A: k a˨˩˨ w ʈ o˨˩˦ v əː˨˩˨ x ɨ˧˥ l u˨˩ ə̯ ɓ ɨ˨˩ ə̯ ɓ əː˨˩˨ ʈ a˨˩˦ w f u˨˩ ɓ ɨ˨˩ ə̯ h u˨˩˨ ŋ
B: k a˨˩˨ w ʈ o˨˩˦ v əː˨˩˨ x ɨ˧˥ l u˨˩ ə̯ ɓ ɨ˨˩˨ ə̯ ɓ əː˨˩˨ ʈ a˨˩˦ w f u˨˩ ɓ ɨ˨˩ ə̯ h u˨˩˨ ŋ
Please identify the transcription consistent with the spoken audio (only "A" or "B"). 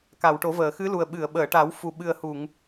B